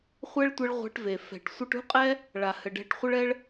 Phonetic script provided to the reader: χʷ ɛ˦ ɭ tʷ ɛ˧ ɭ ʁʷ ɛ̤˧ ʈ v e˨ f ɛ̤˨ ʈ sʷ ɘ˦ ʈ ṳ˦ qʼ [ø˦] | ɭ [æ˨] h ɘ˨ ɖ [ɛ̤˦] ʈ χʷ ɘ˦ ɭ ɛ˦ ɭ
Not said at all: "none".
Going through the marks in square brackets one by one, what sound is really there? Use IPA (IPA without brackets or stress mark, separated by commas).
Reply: ɛ˦, a˨, ɛ̤˧